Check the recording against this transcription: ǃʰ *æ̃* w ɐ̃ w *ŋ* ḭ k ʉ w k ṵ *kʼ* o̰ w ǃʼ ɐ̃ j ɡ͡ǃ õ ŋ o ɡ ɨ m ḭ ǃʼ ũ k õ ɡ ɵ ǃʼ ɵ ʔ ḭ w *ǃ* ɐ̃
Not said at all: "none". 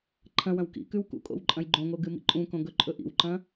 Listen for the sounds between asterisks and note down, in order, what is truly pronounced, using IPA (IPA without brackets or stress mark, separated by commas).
ɐ̃, k, kʼ, ǃ